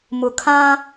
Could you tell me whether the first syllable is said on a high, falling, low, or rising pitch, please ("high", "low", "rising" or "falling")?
low